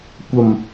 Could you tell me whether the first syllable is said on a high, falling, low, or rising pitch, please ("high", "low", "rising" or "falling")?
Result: low